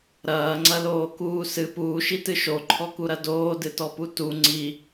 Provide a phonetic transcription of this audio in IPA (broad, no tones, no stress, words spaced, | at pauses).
ɾɐːŋ͡ǀɐloːkuː sɨ puːʃitɨ ʃoǃʰɔkuɾɐ doːdɨtɔpu tu ŋ͡ǀi